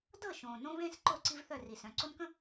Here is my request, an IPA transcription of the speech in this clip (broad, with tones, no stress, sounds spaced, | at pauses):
d ɤ˦˨ ʃ õː˨ n õ˦ β ẽː˦ s ǃ o˦˨ ǀ i˦ v θ œ˦˨ r i˨ s œ̃˨ ǀ o˦ n k ə̃˦